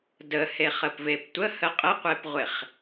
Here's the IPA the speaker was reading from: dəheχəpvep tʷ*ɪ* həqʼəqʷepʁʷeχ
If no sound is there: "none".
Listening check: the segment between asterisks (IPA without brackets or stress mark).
ə